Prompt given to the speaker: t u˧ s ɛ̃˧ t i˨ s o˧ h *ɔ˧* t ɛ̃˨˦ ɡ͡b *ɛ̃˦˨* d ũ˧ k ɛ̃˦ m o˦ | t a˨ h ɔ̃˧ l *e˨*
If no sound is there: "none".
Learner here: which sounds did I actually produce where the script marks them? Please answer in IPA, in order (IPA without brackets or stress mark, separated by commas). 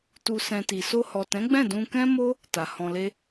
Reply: ɔ˨, ɛ̃˦˨, e˦